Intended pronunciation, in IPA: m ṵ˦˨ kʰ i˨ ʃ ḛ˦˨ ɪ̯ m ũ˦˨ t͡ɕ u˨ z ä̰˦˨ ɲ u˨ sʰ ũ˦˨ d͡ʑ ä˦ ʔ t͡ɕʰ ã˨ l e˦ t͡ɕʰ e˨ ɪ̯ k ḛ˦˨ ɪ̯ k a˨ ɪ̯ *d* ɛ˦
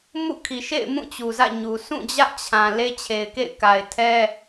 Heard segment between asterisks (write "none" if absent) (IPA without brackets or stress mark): tʰ